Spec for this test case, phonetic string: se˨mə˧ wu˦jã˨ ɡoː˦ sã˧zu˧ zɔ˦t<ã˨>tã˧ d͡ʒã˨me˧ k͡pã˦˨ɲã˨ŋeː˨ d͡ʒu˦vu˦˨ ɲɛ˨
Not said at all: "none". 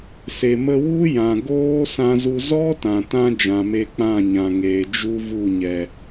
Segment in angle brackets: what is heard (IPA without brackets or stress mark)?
ã˨